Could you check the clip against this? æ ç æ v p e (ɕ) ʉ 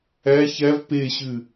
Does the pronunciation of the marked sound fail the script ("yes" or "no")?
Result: no